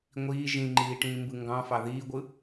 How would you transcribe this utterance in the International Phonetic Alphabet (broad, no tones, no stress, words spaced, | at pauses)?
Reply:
ŋʷiː ʒĩŋ͡ǃiː ʈĩːmbɯŋɡɑ̃fɑ ðiːɡʷɯ